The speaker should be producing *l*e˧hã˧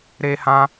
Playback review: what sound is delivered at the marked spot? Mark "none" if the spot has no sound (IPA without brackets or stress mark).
ɾ